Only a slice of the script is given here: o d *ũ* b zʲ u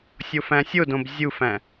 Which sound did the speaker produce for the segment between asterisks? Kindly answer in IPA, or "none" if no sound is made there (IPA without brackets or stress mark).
õ